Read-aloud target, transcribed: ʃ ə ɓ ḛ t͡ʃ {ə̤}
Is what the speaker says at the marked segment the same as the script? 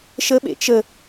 no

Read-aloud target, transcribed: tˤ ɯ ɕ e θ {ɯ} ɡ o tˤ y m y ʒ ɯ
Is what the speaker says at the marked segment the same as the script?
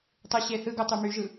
yes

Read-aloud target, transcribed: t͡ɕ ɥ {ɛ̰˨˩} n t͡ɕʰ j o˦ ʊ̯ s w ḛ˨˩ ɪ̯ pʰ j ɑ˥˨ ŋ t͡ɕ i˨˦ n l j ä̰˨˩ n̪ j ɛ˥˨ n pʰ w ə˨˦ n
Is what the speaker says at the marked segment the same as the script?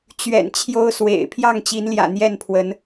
yes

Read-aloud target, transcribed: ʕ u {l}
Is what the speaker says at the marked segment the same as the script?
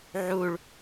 no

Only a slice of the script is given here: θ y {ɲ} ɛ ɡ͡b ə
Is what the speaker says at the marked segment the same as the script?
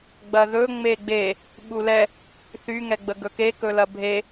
no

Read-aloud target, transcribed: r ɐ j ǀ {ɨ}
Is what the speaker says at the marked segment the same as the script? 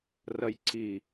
no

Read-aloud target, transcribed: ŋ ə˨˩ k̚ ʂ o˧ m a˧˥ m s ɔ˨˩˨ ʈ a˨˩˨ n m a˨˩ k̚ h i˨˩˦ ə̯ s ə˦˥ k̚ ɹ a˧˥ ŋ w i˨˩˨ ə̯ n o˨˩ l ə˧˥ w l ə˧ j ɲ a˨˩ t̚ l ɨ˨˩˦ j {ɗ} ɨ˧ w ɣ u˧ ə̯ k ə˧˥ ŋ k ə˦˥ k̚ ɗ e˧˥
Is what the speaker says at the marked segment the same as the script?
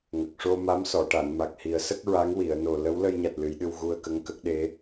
yes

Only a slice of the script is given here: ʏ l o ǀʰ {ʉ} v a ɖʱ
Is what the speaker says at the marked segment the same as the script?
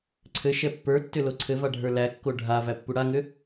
no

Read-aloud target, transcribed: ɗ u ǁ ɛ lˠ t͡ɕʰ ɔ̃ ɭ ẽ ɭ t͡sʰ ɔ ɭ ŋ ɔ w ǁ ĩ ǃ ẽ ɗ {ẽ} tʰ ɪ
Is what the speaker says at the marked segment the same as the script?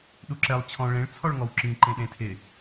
yes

